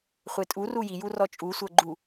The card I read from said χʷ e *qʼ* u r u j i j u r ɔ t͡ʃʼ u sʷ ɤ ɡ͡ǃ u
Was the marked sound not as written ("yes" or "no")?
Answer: yes